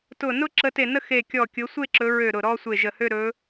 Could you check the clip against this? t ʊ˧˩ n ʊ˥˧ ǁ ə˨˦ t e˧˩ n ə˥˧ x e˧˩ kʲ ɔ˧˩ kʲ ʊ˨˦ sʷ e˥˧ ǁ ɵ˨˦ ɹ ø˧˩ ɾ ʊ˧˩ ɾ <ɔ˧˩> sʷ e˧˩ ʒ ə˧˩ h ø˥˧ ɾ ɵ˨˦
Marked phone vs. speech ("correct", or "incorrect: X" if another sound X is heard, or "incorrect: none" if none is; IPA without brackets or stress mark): incorrect: ɔ˥˧